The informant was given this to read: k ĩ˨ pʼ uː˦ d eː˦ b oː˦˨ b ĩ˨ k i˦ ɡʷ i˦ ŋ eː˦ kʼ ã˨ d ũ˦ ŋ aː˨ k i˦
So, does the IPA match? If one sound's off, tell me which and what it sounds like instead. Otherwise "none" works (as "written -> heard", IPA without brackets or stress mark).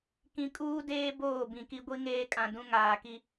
pʼ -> kʼ